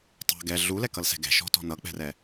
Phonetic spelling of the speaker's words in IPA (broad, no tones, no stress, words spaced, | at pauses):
tˤɛ̤ ɡɛ ɮulɛkʌlsɛ̤ ɡɛ̤ʃɔ̤tɔ̤ nʌk͡pɛ̤rɛ